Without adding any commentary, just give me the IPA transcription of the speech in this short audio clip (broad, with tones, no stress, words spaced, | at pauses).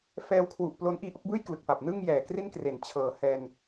fɛː˧wkʰwu˨˩ʔplo˦˥n ʔiː˧ ʔo˥˩k̚bɯː˥˩jklɯ˨˩k̚fa˨˩p̚ nɯ˥˩ŋjɛː˨˩kri˥˩nkre˨˩n t͡ɕʰɤː˨˩hɛː˧n